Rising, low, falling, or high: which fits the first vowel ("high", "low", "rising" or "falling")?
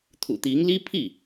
low